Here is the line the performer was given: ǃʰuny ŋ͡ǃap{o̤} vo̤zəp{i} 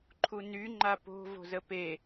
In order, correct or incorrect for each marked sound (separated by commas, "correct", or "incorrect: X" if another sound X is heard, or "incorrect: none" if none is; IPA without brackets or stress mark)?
correct, incorrect: e